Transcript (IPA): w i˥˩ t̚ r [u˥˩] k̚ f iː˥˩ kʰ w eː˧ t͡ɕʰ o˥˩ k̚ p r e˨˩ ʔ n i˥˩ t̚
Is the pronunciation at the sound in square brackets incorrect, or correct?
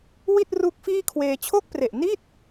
incorrect